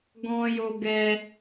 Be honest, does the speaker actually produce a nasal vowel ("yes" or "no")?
yes